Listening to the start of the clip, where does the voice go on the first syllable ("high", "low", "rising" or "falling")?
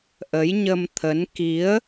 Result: rising